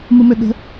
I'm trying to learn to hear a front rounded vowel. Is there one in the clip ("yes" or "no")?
yes